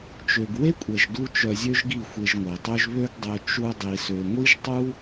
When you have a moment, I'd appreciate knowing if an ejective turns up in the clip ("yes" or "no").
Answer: yes